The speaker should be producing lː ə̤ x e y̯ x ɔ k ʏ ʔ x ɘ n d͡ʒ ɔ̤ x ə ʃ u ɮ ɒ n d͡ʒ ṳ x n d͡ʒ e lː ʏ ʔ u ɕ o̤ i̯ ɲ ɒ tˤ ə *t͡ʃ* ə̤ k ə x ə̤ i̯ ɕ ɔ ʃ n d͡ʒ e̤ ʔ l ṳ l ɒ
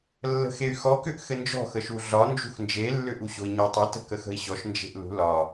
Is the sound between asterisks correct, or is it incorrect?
incorrect